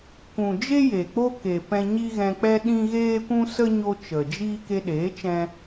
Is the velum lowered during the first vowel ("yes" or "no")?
yes